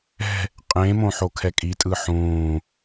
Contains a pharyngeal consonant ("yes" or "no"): yes